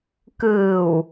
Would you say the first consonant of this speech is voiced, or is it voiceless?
voiceless